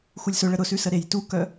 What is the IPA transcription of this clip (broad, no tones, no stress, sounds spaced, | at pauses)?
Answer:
x u lʲ s ʊ ɭ ə ɾ ʊ s ʉ s ə ɾ e j t u k œ